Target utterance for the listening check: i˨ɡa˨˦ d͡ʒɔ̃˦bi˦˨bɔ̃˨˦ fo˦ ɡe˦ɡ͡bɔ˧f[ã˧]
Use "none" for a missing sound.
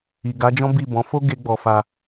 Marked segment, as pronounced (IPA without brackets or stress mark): a˧